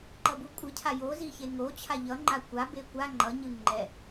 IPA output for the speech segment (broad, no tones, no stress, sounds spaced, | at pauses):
ǃ ʌ b u kʷʼ ɯ cʰ a j o z i ç e ŋ o t͡ɕʰ a ʎ ʌ ŋ͡ǃ a kʷ a b e kʷ a ŋ͡ǃ ʌ ɲ ɯ ŋ͡ǃ ɛ